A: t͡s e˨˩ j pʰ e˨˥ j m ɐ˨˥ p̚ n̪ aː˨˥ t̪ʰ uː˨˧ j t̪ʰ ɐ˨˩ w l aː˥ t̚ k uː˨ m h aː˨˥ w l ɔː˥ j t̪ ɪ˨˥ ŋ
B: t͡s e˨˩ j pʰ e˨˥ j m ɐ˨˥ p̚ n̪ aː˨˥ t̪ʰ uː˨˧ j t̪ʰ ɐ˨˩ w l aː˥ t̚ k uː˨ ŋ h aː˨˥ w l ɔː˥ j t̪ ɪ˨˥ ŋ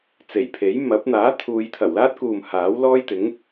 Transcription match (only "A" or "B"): A